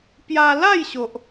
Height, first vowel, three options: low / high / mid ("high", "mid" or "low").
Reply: low